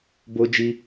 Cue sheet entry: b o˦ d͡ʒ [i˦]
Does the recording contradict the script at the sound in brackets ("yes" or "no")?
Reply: no